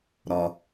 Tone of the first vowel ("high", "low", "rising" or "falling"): low